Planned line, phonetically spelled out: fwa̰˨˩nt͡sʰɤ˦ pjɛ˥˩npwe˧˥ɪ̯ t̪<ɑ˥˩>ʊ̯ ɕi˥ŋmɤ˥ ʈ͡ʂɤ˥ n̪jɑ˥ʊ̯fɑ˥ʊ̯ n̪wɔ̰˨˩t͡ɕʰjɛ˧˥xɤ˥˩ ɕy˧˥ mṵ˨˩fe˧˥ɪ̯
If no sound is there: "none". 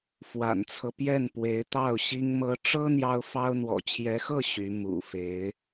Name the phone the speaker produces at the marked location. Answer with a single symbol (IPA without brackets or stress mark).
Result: ɑ˥˩